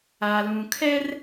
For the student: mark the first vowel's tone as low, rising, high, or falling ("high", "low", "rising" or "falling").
low